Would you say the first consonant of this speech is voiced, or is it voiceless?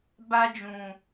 voiced